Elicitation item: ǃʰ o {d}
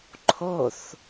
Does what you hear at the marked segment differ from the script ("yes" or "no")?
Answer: yes